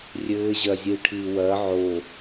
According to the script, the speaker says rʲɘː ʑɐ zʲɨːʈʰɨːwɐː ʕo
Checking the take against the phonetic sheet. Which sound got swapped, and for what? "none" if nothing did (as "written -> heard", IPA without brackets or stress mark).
none